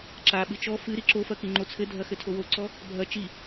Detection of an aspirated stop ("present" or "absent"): present